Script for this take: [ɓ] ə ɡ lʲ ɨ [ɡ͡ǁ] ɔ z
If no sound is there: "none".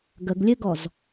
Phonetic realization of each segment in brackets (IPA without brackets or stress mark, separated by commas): ɡ, ɡ